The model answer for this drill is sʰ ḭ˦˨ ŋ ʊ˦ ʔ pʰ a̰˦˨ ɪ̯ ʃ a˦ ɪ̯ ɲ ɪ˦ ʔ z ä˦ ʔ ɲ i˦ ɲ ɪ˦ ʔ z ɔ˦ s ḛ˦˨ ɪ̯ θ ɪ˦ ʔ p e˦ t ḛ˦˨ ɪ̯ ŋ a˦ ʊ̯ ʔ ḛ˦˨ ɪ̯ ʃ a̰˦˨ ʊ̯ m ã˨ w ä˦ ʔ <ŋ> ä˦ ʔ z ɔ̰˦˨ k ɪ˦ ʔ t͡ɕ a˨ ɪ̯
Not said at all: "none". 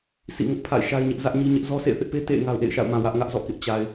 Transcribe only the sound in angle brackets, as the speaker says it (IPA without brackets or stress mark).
ŋ